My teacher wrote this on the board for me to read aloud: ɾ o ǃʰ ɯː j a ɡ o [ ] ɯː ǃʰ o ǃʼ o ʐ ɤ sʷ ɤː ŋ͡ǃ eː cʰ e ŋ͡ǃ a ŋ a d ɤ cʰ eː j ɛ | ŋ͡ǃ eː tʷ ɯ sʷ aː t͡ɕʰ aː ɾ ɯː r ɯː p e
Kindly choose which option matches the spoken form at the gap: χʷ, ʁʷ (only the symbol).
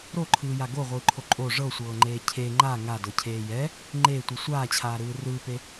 ʁʷ